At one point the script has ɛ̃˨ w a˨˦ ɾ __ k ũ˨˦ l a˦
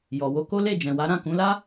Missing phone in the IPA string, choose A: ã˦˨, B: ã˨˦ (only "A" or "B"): A